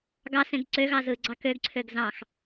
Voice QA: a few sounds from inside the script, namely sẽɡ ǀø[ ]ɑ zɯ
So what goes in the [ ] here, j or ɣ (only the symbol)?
ɣ